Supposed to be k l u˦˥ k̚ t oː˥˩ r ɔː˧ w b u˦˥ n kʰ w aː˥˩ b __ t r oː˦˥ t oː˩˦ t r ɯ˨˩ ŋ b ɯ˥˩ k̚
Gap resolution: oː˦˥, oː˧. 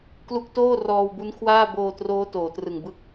oː˧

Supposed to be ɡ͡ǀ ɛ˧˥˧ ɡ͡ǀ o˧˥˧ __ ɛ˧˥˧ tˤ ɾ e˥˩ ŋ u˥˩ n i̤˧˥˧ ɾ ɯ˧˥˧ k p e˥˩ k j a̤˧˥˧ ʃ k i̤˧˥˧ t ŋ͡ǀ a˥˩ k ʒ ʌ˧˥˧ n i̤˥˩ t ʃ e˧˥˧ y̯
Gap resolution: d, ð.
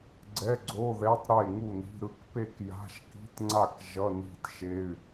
ð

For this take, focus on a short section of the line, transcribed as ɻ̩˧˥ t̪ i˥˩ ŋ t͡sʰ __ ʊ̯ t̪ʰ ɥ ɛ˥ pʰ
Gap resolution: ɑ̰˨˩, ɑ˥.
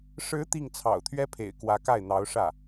ɑ̰˨˩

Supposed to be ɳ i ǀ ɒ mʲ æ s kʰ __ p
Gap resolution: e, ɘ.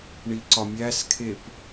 e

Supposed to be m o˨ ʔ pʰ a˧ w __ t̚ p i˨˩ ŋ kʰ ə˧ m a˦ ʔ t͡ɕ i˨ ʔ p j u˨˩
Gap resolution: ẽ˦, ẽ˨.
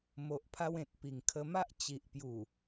ẽ˨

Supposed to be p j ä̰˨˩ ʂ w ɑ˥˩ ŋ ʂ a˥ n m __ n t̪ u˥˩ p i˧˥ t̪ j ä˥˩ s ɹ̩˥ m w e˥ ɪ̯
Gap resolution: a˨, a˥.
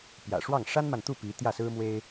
a˨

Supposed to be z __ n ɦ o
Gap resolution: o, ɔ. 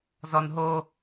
ɔ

